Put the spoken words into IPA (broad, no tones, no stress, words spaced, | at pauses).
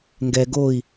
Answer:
ŋɡɛ ɡoi̯